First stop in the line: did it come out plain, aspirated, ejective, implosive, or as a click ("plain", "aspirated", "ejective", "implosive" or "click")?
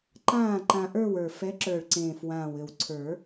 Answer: click